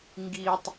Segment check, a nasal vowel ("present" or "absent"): absent